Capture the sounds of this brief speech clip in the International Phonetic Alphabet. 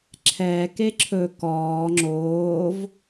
ǁʰ ɛː k e ǁʰ ɵ k ɔː ŋ͡ǁ oː v

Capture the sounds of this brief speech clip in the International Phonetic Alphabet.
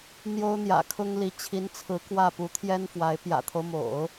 n̪ j o˥ ʊ̯ n̪ j ä̰˨˩ kʰ ʊ˥ ŋ l i˧˥ t͡ɕʰ i˧˥ n t͡sʰ ɹ̩˧˥ k w ä˥˩ p u˧˥ t̪ʰ j ɛ˥ n f w a˧˥ ɪ̯ p j ä̰˨˩ t̪ʰ o˦ ʊ̯ m o̰˨˩˦ ʊ̯

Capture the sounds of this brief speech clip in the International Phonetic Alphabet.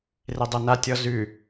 r e dˤ ɛ n a tʲ ɔ z ʉ

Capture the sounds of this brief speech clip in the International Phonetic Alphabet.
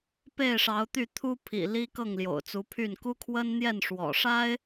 p e˥˨ ɪ̯ ʂ ɑ˨˦ ʊ̯ t̪ y˥˨ t̪ʰ u˦ pʰ ḭ˨˩ l i˦ k ɤ˥˨ ŋ l j o̰˨˩ ʊ̯ t͡s u˨˦ pʰ y˥˨ n k u˦ kʰ w ə˦ n n̪ j ɛ˥˨ n ʂ w ɔ̰˨˩ ʂ a˦ ɪ̯

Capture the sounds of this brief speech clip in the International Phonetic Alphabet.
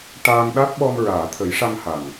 ʈ aː˧ ŋ ɗ a˦˥ t̚ ɓ ɔ˧ m ɹ aː˨˩˨ t̪ʰ ə˨˩˦ j ʂ a˧ ŋ h a˨˩ ŋ

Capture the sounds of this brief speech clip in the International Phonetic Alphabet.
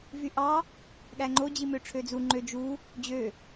v y ʔ ɑ | ɠ æ ŋ͡ǃ o d͡ʑ i m ø ʈ͡ʂʰ ø d͡z u ŋ͡ǃ ø d͡ʒ u | d͡ʑ ø

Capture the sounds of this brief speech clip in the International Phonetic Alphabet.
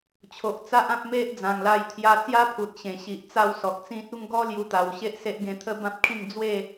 t͡ɕʰ o˨ ʔ t͡s a˦ ʔ ã˦ p̚ m e˦ ʔ d͡z ã˨˩ ŋ l a˧ j t̪ʰ j a˧ t͡s j a˦ pʰ u˨ t̚ ɕ ẽ˨˩ ɕ i˨ ʔ t͡s a˧ w s ɔ˨ k̚ t͡s ĩ˦ t̚ u˥˧ ŋ ɡ ɔ˦ l j u˧ t̪ a˨˩ w ɕ e˦ ʔ s e˦ ʔ ɡ ẽ˧ t̪ʰ ə˥˧ b ã˦ p̚ kʰ ĩ˥˧ ŋ d͡z w e˥˧

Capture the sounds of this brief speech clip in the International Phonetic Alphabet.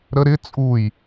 ɾ ə ɾ ɪ t͡sʼ u j

